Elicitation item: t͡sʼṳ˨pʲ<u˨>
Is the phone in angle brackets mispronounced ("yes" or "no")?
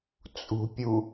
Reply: no